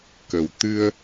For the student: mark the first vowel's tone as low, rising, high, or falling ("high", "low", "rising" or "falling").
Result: low